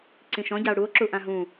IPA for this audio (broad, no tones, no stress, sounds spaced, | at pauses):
ǀ ĩ ʃ ɔ̃ ɟ a o̯ ɽ u o̯ ǁ u ʔ ã ɦ ũ